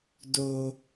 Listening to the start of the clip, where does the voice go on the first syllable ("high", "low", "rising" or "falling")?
high